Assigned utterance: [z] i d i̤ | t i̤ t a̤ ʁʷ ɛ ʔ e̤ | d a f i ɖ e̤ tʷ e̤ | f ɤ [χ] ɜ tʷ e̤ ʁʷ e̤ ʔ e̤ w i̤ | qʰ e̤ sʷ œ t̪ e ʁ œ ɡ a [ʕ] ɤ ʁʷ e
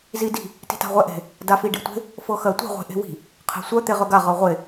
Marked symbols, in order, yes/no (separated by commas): yes, no, no